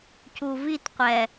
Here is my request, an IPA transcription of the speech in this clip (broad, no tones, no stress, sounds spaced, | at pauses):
c u v i t qʷ ɛ